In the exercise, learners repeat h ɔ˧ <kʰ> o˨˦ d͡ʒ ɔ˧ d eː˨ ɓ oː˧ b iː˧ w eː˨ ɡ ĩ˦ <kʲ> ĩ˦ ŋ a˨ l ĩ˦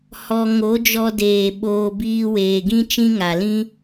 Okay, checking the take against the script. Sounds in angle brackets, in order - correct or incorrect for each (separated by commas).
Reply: incorrect, incorrect